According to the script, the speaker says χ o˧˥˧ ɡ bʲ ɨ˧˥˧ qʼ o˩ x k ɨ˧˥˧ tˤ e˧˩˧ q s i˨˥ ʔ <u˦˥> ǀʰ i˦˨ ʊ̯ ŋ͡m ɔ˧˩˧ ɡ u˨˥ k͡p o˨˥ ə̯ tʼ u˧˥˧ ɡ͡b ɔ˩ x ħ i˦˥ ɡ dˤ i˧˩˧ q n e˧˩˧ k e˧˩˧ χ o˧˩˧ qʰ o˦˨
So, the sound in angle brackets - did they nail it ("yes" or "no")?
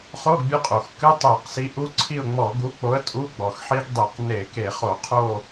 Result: no